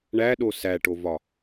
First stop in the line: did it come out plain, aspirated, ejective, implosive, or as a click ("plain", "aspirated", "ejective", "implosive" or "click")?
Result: implosive